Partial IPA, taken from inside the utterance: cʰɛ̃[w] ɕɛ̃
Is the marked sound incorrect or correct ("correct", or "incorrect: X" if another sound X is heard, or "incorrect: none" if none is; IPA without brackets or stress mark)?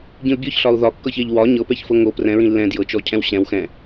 correct